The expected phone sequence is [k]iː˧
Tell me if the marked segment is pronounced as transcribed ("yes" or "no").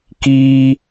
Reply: yes